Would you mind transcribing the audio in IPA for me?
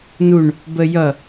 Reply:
n u ɳ | b ə j ʌ

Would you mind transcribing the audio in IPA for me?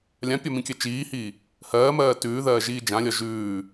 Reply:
lʲ ã pʲ ɒ m ĩ kʲ ɜ t͡ʃ iː h iː | h ɜː m ɜː t ʉː ð ɜː ʒ iː d͡ʒ ã lʲ ɒ ʒ ʉː

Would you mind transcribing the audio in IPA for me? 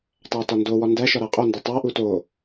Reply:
tˤ æ t ɒ n d o w ɒ n d æ ʃ ɒ ɾ æ qʼ o n d o tˤ æ ʔ u t o

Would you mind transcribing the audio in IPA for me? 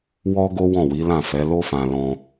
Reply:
w ɔ˦ ɡ o˦ w ɔ̃˦˨ w i˨˦ l ã˦˨ f ɛ˨˦ l o˦ f ã˧ l ɔ̃˧

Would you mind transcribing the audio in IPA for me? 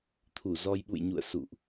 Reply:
t̪ʰ u˧˩ z ɔ˧ j ɓ ṵ˧˨ j ɲ ṵ˧˨ ə̯ s ṵ˧˨ ʔ

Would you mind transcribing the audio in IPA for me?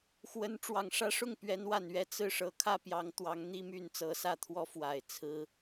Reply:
x w ə˧˥ n ʈ͡ʂ w ɑ˨˩ ŋ ʂ ä˥ ʂ ʊ˥˩ ŋ p ɥ ɛ˧˥ n w a˨˩ n ɥ ɛ˥˧ t͡s ɹ̩˥˩ ʂ ɤ˧˥ kʰ ä˥˩ p j ɑ˧˥ ŋ t̪ w ɑ˧˥ ŋ n̪ i˥ m y˥˩ n t͡s ɤ˧˥ s ä˥˩ t̪ʰ w ɔ˥ f w a˨˩ ɪ̯ t͡sʰ ɹ̩˥

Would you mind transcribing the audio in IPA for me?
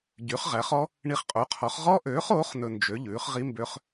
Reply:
ɟ y˨˥ χ ʁ æ˨˥ χ ɔ˦˥ | ɳ i˧ χ qʼ o˨˥ qʰ ɔ˨˥ χ ʁ ɔ˦˥ ʔ øː˨˥ χ oː˨˥ χ n ɵ˧ n d͡ʒ ø˨˥ ʎ ʉː˨˥ χ ʁ i˦˥ m b ø˦˥ χ

